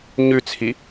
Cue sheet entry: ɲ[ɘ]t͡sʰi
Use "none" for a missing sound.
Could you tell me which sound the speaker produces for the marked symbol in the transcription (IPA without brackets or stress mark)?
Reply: ʉ